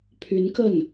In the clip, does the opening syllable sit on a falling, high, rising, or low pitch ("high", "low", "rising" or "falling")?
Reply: rising